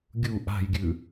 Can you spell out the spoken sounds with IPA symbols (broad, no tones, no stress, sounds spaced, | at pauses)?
ɡʲ u ʔ a̤ j ɡʲ ʉ